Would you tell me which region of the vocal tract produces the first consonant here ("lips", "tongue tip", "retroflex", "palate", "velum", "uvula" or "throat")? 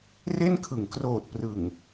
tongue tip